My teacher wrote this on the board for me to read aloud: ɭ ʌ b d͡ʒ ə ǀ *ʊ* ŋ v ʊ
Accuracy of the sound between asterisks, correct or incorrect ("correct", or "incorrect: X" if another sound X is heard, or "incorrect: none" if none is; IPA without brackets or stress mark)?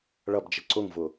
correct